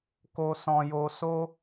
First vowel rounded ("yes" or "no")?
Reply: yes